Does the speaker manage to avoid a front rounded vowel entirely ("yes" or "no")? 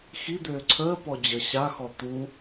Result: no